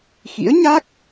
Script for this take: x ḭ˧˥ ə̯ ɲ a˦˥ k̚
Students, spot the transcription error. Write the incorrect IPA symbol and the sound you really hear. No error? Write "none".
none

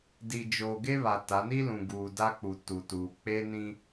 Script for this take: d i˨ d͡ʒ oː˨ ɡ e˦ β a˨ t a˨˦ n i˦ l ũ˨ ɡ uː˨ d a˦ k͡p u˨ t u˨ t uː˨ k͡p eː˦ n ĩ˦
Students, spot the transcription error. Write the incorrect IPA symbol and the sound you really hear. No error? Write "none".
none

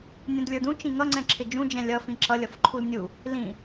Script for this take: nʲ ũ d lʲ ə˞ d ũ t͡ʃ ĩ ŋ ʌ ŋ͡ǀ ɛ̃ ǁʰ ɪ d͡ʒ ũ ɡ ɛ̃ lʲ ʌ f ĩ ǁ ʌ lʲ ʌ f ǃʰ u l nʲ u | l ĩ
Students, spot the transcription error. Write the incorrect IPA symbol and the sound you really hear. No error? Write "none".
ɡ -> d͡ʒ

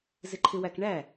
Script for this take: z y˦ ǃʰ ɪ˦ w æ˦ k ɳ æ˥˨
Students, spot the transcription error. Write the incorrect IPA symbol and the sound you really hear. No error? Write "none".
y˦ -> ɪ˦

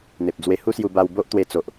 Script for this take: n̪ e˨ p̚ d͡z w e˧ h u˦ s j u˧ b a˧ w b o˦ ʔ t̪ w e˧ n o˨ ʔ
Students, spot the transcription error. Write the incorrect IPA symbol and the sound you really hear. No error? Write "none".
n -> t͡s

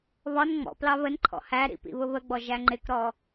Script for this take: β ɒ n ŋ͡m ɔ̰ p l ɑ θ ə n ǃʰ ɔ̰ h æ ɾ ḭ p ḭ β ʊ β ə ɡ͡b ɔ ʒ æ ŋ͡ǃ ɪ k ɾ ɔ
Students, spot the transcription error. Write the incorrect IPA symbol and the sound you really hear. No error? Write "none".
θ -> β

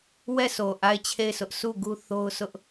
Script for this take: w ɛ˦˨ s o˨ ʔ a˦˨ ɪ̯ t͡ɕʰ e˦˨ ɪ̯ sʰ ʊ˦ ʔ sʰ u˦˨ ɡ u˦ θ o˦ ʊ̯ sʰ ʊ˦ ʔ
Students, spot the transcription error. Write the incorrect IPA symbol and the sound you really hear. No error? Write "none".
none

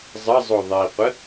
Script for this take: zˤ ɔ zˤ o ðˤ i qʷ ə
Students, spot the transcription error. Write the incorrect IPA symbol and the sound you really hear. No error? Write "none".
ɔ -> ə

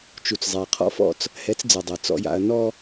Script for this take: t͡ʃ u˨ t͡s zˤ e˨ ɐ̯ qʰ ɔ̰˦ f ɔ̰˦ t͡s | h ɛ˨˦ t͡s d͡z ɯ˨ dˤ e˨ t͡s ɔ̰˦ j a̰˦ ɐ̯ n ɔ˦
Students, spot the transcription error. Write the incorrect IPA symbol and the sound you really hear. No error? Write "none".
none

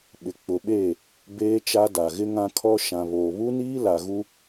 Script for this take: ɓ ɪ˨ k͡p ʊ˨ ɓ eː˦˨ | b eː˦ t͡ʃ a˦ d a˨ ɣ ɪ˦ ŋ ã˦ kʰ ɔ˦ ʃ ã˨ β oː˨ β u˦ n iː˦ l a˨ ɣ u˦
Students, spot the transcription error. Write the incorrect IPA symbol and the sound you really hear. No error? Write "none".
none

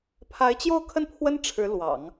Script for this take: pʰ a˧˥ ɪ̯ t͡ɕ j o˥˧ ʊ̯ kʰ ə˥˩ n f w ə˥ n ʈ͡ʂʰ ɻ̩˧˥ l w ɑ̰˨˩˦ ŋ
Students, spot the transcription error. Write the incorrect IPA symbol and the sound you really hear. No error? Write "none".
f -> pʰ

